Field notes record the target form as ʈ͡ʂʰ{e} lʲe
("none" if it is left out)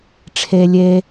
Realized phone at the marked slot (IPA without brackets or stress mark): e